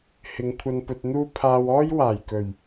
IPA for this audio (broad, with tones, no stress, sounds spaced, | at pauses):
h ɪ˨˧ ŋ kʷʰ ɐ˧ n p ɵ˧ t̚ n̪ uː˥ pʰ aː˧ w ɔː˥ j w aː˨˩ j k ɵ˨˩ ɥ